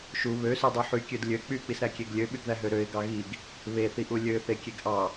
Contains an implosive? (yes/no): yes